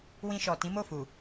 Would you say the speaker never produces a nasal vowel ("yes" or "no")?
no